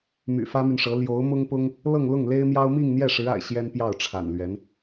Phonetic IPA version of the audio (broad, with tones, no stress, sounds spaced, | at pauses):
m y̰˨˩ f ä˥ m y˨ n ʂ ɤ˧˥ l j o˧˥ ʊ̯ m ʊ˥ ŋ p ʊ˥ ŋ | l ɤ˥˧ ŋ l ʊ˥˩ ŋ l e˥ ɪ̯ m j ɑ˥ ʊ̯ m i˥˧ ŋ n̪ j ɛ˥˩ ʂ ɻ̩˧˥ a̰˨˩ ɪ̯ ɕ j ɛ˥ n p j ɑ˥˩ ʊ̯ ʈ͡ʂʰ a̰˨˩ n l ɥ ɛ˧˥ n